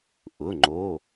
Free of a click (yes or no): no